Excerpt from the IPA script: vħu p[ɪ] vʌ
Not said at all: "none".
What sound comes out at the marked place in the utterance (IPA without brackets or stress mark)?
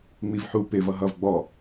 ɪ